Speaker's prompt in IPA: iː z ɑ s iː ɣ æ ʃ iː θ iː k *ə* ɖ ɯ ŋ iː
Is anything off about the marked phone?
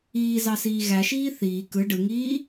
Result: yes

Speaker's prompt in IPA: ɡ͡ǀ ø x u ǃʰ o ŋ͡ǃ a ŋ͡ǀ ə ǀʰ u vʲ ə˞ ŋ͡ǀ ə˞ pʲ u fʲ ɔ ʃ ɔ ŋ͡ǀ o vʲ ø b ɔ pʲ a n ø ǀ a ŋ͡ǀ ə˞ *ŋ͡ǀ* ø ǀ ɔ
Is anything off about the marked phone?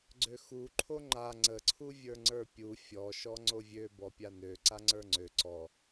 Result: no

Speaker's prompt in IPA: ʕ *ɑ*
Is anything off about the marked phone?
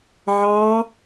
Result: no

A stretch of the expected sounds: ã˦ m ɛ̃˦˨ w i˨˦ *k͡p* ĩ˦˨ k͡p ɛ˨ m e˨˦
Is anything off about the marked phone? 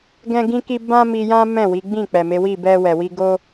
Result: yes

